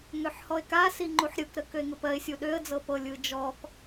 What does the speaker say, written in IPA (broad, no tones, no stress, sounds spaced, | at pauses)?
ŋ ø ħ h ɔ ɪ̯ k a s i ŋ͡ǃ u ħ ɾʲ ɯ k ɾ ə k ø ɪ̯ ŋ ɯ p ɜ ɪ̯ sʲ u ɗ ø ə̯ d͡z ɤ p ɤ lʲ ɯ d͡ʒ ɔ k